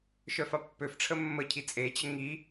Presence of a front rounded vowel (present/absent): present